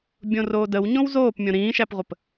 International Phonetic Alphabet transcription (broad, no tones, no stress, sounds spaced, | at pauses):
bʲ õ r oː d ə w ɲ õ w z oː p mʲ õ ɾ ĩː ʃ æ p ʁʷ ə p